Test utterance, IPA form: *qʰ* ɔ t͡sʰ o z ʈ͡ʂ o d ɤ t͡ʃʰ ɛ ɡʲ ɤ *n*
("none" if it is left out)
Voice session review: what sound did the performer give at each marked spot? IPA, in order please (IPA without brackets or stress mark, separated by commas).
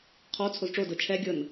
qʰ, n